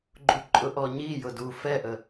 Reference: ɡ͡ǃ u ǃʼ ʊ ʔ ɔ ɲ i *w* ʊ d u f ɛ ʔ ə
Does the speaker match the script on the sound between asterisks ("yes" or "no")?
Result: no